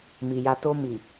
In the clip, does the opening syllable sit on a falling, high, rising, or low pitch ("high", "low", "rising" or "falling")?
low